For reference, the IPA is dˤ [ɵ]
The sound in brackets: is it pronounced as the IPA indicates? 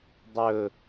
yes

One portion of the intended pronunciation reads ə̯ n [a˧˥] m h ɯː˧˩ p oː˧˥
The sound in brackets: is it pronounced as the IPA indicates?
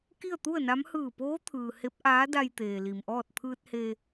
yes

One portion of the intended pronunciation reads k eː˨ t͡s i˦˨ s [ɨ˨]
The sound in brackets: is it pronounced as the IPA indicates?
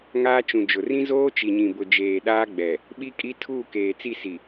no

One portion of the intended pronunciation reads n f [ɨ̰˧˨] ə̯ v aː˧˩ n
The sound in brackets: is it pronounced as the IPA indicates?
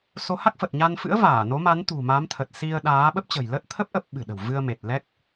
no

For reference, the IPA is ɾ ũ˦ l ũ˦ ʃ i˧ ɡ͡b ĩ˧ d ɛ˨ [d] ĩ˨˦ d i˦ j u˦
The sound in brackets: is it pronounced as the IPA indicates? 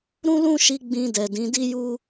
yes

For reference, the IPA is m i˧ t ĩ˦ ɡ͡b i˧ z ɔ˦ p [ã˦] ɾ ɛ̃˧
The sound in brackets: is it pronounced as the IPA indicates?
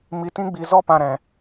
no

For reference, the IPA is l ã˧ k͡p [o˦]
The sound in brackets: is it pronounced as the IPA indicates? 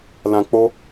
yes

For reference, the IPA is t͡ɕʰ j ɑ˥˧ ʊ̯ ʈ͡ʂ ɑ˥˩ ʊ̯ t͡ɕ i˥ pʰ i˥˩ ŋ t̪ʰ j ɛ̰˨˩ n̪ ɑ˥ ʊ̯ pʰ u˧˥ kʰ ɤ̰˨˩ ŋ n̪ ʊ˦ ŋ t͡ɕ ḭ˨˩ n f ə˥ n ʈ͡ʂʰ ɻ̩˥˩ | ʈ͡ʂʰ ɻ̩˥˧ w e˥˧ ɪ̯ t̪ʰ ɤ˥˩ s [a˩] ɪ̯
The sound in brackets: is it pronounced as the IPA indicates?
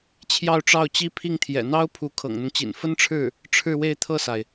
yes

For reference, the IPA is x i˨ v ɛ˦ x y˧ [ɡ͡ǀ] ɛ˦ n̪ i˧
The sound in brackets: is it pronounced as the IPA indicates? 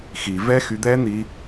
no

